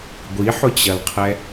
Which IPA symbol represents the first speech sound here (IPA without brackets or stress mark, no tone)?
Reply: ɡʷ